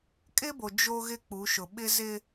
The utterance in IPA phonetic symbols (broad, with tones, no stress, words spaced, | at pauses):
kʼɪ˦bo˨ d͡ʒo˦ɣɪ˦k͡pu˨˦ʃʊ˨ ɓɪ˦zɪ˦